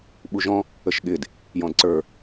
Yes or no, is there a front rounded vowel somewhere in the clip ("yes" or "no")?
no